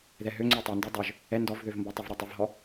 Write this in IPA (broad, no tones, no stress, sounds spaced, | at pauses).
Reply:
ð ɛ ɦ ø ŋ͡ǀ ø tˤ ɛ n d ø dˤ ø ʒ | ɛ n d ɔ v ð ø v m b ɔ tˤ ə v ɾ ə tˤ ə v ɦ ɔ